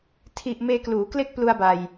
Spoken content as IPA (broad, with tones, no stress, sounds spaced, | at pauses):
tʰ i˨˩ ʔ m eː˧ k l uː˩˦ k l e˦˥ k̚ p l u˧ a̯ b a˧ j